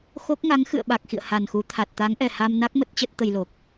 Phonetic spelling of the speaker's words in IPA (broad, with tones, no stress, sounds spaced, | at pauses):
x o˦˥ k̚ ŋ a˨˦ ŋ x ɨ̰˧˨ ə̯ ɓ a˨˩ k̚ x ḭ˧˨ ə̯ h a˨˩ n x u˨˦ t̪ʰ a˨˩ t̚ t̪ a˨˦ ŋ ʔ ɛ˨˩ h a˧ m n a˦˥ k̚ m ə˦˥ t̚ t͡ɕ ə˦˥ t̚ t̪ ə˧ j l o˨˩ k̚